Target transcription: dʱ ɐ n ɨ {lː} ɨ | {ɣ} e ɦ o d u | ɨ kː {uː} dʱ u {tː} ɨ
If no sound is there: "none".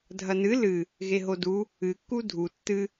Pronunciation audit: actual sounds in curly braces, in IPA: l, ɣ, u, tː

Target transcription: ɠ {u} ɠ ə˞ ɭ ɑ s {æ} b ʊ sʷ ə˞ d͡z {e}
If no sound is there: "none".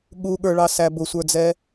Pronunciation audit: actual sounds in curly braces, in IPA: u, æ, ɛ

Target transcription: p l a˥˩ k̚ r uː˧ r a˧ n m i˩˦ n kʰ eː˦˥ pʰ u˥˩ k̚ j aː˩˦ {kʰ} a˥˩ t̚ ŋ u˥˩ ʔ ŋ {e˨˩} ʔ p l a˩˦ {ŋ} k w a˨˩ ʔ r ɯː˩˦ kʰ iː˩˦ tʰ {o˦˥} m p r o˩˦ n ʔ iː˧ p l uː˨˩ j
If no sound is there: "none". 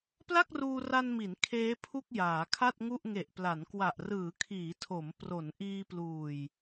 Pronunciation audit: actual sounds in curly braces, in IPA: kʰ, e˨˩, n, o˩˦

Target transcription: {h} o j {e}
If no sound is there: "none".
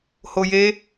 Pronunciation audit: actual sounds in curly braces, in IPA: h, e

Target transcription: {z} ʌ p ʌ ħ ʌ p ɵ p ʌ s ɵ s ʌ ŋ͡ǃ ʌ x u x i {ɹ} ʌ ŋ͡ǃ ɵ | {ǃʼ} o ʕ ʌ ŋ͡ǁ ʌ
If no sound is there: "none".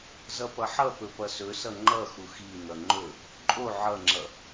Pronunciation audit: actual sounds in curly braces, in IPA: z, n̪, ǃʼ

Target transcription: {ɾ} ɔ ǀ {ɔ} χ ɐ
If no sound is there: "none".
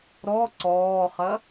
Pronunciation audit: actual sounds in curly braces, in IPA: ɾ, ɔː

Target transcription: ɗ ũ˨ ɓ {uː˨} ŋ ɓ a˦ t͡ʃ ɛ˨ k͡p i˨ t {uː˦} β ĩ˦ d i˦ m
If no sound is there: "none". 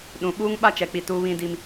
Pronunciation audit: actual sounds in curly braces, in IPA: uː˦, uː˦

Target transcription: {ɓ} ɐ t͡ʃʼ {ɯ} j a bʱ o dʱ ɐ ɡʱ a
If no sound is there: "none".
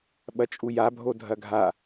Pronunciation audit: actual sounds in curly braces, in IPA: ɓ, u

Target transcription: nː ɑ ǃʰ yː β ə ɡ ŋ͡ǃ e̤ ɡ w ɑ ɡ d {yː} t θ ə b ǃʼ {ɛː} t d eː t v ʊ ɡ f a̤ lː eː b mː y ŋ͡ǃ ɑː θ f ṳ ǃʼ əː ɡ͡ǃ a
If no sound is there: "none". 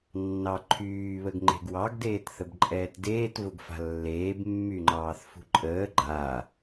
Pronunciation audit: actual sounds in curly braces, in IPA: eː, ɛː

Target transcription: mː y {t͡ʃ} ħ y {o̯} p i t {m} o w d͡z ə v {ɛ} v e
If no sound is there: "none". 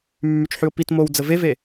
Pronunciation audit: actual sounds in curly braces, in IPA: t͡ʃ, o̯, m, e

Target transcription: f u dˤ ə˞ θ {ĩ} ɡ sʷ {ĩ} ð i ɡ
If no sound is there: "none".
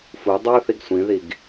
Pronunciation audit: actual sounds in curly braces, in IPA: i, ĩ

